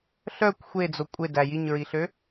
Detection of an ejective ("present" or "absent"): present